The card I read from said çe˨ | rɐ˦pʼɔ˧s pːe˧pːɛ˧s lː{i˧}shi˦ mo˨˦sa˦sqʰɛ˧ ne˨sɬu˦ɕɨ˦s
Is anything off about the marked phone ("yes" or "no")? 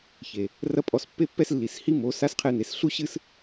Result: yes